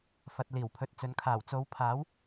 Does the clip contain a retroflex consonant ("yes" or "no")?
no